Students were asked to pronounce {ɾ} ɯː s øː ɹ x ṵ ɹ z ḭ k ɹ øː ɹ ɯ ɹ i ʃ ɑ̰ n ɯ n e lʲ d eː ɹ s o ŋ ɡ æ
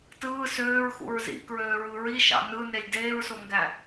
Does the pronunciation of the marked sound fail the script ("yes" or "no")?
yes